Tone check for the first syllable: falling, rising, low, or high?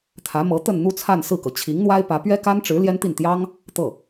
rising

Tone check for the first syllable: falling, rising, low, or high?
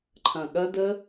low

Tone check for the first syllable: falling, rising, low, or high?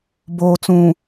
low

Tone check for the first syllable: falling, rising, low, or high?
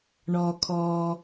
low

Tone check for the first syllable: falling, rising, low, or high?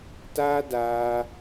high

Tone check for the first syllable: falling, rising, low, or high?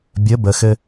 rising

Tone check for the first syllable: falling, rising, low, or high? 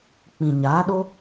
low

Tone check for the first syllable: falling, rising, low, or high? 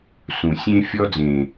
low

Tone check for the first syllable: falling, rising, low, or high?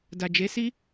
low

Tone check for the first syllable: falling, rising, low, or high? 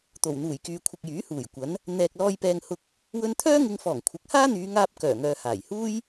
low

